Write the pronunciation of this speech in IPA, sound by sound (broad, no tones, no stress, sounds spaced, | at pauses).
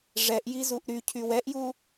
ʐ ɛ ʔ j i z u ʔ ɾ y cʰ y w ɛ ʔ j u